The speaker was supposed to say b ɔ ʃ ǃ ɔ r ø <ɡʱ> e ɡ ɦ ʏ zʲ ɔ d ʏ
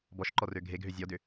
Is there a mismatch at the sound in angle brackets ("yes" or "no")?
no